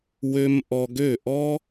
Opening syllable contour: high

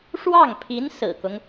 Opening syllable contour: falling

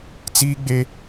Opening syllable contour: high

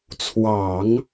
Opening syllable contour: low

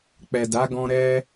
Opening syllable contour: low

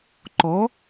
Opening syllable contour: rising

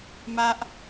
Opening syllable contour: high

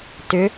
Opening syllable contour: rising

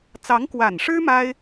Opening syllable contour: rising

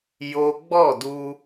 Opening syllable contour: high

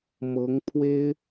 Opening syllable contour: rising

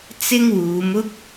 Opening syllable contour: high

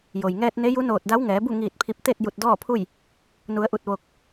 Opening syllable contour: low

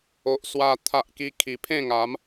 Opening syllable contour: low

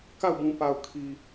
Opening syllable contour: falling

